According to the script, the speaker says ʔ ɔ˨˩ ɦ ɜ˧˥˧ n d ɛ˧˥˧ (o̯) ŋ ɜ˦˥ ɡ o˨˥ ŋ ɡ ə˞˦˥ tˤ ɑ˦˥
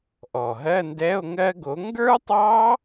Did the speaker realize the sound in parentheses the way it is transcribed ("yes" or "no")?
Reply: yes